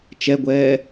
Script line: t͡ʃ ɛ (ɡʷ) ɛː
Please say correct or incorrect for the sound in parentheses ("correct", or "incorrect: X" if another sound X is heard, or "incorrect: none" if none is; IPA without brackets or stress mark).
correct